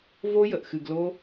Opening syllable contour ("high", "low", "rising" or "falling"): high